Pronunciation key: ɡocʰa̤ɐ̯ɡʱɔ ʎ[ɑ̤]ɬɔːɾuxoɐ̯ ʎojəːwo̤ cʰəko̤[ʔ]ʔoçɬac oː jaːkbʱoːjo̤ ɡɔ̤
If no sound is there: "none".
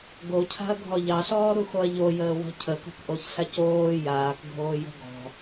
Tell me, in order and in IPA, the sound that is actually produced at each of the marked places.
ɑ, k

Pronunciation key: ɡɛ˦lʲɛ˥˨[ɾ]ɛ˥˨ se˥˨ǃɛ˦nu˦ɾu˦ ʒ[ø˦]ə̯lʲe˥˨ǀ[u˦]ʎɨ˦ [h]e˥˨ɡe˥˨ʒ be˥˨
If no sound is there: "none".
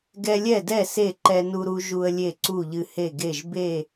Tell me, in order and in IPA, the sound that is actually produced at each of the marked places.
d, u˦, u˥˨, h

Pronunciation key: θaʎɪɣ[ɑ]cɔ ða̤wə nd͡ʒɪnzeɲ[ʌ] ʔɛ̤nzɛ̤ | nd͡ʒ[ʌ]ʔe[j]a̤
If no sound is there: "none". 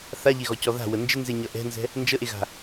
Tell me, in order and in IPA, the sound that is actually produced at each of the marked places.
ɔ, ʌ, ə, ɣ

